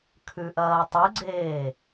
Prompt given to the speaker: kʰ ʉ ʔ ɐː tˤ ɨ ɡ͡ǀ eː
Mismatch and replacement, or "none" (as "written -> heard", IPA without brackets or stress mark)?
none